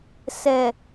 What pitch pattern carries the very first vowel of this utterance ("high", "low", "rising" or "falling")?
low